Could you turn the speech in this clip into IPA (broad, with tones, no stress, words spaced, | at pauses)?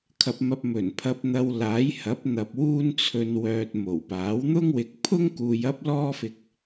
kʰɐ˧p̚mɐ˧p̚ mɵ˨˩npʰɐ˧p̚ n̪ɐ˧w laː˨˥jhɐ˨˥p̚n̪ɐ˨p̚ wuː˥nt͡sʰɵ˧nwœː˧t̚ mo˨˩wpaː˨˥wn̪ʊ˥ŋ wɪ˨k̚pʰʊ˥ŋ kuː˧jɐ˥p̚lɔː˥fɪ˧k̚